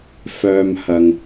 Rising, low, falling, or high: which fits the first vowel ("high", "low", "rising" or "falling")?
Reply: low